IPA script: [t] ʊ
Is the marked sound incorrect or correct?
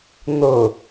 incorrect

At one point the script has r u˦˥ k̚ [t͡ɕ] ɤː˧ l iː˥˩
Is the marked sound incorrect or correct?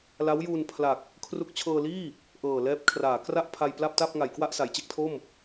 incorrect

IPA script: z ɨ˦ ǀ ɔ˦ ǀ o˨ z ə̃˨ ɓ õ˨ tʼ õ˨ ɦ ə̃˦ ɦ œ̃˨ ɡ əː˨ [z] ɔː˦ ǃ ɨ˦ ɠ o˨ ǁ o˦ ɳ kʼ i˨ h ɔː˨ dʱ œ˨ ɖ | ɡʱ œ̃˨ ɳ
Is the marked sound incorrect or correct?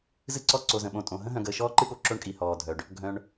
incorrect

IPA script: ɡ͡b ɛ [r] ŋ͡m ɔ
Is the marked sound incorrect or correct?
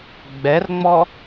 correct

